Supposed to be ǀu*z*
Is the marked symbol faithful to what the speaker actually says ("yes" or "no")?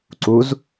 yes